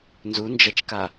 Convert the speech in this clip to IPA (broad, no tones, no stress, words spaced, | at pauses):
nzund͡ʒɐt͡ʃka